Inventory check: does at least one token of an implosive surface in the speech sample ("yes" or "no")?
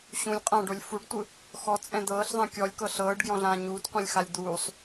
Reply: no